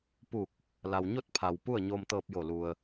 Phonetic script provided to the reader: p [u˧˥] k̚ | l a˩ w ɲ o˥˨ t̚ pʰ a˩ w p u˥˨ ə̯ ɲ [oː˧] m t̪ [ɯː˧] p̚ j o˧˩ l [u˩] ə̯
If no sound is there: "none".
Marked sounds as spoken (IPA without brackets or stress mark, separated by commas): u˧˩, oː˧, ɤː˧, u˩